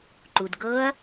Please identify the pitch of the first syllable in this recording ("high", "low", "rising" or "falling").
low